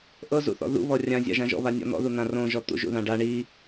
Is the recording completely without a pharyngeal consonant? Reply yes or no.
yes